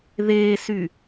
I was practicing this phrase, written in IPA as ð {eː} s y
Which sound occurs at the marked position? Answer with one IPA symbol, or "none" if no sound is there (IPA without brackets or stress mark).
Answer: eː